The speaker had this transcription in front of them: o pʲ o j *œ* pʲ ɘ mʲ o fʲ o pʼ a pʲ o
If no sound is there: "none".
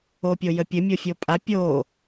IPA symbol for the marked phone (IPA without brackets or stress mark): ə